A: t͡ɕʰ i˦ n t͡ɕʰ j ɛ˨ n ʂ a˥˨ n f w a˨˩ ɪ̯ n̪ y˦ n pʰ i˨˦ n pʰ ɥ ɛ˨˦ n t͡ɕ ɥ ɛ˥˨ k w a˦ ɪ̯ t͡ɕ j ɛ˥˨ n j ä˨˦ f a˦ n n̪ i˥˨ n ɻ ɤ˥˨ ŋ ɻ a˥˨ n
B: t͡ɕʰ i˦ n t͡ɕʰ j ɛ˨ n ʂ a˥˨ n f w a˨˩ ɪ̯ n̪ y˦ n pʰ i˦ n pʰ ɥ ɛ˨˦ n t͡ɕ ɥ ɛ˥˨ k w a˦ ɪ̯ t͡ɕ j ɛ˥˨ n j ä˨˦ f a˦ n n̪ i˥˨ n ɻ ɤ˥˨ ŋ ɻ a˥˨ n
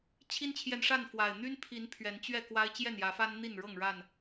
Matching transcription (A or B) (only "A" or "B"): A